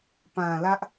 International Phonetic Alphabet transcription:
p ã˨ l ä˦ ʔ

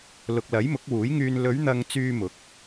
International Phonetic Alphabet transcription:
l ʊ˨ k̚ l ɐ˨˥ j m ʊ˨˥ k̚ w uː˨˥ j ŋ yː˧ n l ɵ˨˧ ɥ n̪ ɐ˨ ŋ t͡s yː˨ m ʊ˨˥ k̚

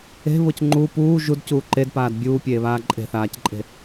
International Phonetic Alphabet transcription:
e̤ β ʊ c ŋ͡ǃ u p uː ʒ u d c uː ǃ e d p aː d bʲ uː pʲ eː β aː ǃʼ e̤ θ aː c ǃʼ e̤

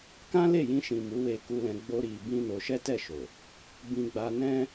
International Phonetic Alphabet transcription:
k ã˦ l e˦˨ j ĩ˧ ʃ ĩ˨ m u˨˦ w e˧ k u˧ l ɛ̃˧ ɡ͡b o˦ ɾ i˧ b ĩ˦ n o˧ ʃ ɛ˦ t ɛ˦˨ ʃ o˨ | b ĩ˧ ɡ͡b a˧ n ɛ̃˦

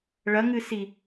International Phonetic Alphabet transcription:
ɭ ɐ ŋ ɨ s i

